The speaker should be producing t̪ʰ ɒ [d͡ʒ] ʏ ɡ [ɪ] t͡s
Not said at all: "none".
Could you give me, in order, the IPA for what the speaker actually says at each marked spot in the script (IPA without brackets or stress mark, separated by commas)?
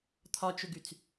t͡ʃ, y